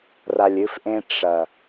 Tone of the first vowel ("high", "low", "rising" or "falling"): low